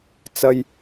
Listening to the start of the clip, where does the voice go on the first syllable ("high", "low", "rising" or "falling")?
low